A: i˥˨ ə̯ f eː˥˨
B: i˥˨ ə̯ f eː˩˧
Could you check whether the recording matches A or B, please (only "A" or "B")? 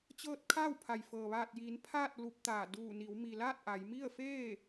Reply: A